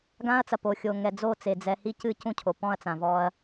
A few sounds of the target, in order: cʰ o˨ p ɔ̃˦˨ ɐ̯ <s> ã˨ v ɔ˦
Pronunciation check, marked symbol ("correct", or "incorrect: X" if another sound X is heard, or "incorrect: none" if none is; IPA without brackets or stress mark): incorrect: t͡s